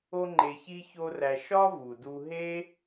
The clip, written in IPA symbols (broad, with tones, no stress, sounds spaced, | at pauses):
o˥ ŋ͡ǃ e˧ ç i˥ ç o˥ r æ˧ ʃ ɒ˥ v u˩ d u˧ ɦ e˥